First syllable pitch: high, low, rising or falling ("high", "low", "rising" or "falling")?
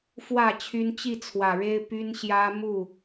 low